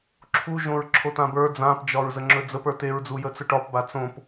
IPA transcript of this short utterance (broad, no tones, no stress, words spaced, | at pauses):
ǁʰu ʒõɹǁʰotãbə˞ d͡zãpd͡ʒɒɹ zəŋ͡ǁɵd͡zəp ə˞teɹd͡zu jət͡sɵʈɒp bat͡sõp